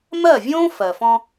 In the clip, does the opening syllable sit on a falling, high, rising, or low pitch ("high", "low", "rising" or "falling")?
falling